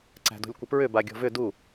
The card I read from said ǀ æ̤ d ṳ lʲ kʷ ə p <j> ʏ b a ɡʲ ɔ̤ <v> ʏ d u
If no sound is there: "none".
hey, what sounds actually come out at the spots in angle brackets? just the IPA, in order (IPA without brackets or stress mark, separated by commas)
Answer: ɹ, v